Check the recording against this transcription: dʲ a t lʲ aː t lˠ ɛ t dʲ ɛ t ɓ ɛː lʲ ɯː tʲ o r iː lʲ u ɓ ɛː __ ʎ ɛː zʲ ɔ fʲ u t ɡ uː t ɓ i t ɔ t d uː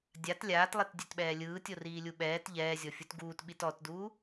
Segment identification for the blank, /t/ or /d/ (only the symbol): t